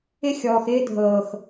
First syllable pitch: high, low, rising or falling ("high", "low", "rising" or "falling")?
high